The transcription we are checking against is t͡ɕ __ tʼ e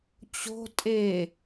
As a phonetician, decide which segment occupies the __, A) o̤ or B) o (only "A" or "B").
A